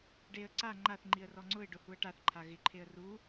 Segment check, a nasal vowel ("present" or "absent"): absent